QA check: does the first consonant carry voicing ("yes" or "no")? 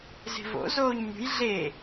yes